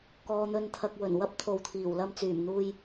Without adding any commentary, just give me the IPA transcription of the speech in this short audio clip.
kɔː˨n̪ɵ˨nt̪ʰɐ˨k̚ wɵ˨˩nwɐ˥p̚t̪ʰo˨wt̪ʰiː˨˩w lɐ˧mt͡syː˨˩mn̪uː˧j

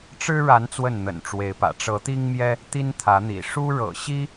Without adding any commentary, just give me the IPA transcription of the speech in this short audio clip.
ʈ͡ʂɻ̩˦ɻa˨˦n t͡swə˥˨nn̪ə̰˨˩nʈ͡ʂwe˨˦ɪ̯pä̰˨˩ ʈ͡ʂɤ˨˦t̪i˦ŋmjɛ˦ | t̪i˦nt̪ʰä˨˦n̪ḭ˨˩ ʂu˦ ɻɤ̰˨˩ɕi˦

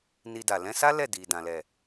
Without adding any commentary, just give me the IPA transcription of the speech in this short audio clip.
ni˧da˨ lɛ̃˧sa˦ lɛ˦˨di˨ dã˨lɛ˨

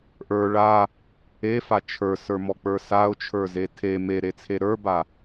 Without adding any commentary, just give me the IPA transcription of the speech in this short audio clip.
ʔə˞ ɭa | efa t͡ʃʰə˞sə˞mɔk͡pə˞ saʊ̯t͡ʃʰə˞ze tʰe meɾet͡sʰe ɾə˞ba

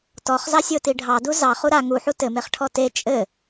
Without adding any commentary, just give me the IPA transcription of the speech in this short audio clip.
tɔχzɑsʲoti ɖʱɑdu zɑχu ɾa ŋuħu tɘmeχʈʰɔ te t͡ʃʼɘ

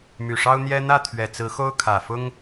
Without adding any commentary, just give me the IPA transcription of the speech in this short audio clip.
my˨˩ʂɑ˦ʊ̯n̪jɛ˦ n̪ä˥˨t̪ʰɥɛ˨˩t͡sɹ̩˨˦ xo˦ʊ̯kʰä˨˩fʊ˦ŋ

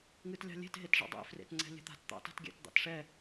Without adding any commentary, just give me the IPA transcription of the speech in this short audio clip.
ŋɨtlʲɑ̤lʲe̤t ɦetʐɑ̰dˤḛ frḛtŋ͡ǀɛ̤lʲɛ̤t̪a̤t t̪ɑ̰ta̤tɡʲɛ̰t d̪ɑ̰tʂɛ

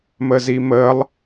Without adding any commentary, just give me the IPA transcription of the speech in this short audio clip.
məːziməːlˠ

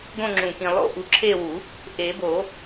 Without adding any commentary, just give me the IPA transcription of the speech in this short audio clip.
ɡõ˦˨ŋ͡ǁũ˨˩kĩ˨˩ lˠo̰˦˨ʔu˨˩˦ǁʰe˦˨wu˨˩˦ | ʔe˨˩˦bo˨˩˦

